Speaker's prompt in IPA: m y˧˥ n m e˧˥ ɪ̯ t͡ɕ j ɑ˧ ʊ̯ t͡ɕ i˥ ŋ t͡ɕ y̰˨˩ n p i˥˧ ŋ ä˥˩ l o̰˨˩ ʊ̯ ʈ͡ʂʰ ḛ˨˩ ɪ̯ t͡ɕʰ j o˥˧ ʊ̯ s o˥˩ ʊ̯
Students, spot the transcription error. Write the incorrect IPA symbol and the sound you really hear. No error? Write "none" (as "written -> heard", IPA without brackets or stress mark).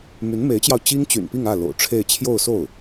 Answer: ḛ˨˩ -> e˥˧